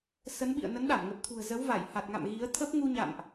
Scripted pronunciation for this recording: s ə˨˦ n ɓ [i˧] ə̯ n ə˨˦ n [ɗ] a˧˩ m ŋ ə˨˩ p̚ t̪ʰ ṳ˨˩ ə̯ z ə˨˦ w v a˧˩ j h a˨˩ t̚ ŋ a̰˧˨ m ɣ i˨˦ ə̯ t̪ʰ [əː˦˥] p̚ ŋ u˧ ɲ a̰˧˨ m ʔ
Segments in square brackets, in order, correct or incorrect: incorrect: ḭ˧˨, correct, incorrect: ə˦˥

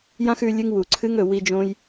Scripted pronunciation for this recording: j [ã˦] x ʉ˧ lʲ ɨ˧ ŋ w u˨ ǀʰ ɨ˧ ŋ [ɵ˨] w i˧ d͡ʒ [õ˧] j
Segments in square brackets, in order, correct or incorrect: correct, correct, correct

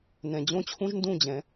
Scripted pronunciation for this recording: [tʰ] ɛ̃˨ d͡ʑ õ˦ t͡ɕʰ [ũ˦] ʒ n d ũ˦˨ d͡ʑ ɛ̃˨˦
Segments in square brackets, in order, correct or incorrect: incorrect: n, correct

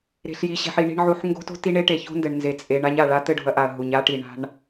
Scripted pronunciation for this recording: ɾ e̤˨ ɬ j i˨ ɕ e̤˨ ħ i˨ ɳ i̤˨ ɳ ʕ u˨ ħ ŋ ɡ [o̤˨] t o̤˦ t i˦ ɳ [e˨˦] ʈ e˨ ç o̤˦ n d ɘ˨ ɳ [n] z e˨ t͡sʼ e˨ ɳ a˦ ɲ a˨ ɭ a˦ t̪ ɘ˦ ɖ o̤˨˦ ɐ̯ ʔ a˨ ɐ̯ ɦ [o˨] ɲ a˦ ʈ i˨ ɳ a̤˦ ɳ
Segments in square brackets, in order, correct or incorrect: incorrect: o̤˦, incorrect: e˦, correct, incorrect: u˨

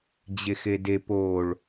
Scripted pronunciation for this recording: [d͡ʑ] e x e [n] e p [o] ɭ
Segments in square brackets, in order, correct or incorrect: correct, incorrect: d, correct

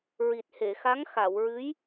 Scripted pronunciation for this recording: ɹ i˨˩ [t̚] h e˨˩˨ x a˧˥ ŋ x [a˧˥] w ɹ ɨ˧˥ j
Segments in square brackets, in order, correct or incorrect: correct, incorrect: a˨˩˨

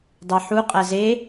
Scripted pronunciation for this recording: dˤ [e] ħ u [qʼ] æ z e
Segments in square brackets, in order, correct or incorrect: correct, correct

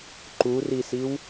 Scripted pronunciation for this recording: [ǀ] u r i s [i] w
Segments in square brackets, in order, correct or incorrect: incorrect: ǃ, correct

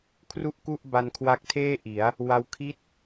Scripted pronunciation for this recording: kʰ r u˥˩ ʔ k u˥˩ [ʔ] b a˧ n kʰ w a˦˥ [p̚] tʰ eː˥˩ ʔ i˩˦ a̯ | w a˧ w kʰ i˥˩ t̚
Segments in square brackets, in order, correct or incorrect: correct, incorrect: k̚

